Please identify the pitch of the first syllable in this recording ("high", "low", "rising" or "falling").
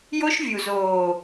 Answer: high